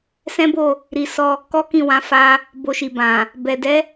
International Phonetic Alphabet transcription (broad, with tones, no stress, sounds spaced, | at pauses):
s ɛ̃˦ b o˦˨ | ɾ i˧ s ɔ˧ | k ɔ˦ k ĩ˦˨ w ã˨˦ f a˧ | b o˧ ʃ i˨ b ã˨ | b ɛ˨ d ɛ˨˦